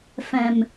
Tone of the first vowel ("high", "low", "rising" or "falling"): low